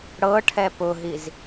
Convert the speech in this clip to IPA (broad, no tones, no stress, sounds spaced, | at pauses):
ɽ ɤ ʈʰ ɛ p ʊ ɦ i z